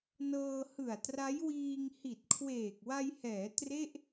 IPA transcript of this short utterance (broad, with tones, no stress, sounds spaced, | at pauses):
n ɤː˧ h ɯ˨˩ a̯ t r a˦˥ j w iː˧ ŋ h i˨˩ t̚ kʰ w eː˨˩ k̚ w a˧ j h ɛː˩˦ t r e˥˩ ʔ